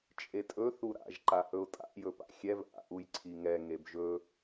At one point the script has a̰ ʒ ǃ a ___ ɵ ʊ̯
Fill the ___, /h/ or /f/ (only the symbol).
h